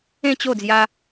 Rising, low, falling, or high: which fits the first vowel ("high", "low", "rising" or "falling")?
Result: falling